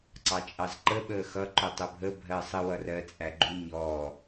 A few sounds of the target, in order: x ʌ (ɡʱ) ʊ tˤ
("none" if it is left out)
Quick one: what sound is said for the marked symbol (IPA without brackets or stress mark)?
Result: ǃ